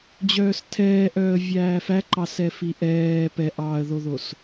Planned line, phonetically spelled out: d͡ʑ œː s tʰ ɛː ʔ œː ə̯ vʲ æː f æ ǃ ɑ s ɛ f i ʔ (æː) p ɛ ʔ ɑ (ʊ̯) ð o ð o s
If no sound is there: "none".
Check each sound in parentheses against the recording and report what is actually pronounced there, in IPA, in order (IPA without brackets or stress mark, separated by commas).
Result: ɛː, ə̯